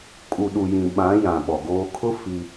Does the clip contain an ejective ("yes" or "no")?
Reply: yes